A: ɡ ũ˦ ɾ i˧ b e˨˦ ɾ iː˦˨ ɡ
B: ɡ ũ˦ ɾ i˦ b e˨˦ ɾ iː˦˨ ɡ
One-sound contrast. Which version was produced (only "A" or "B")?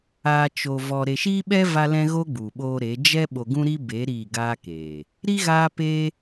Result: B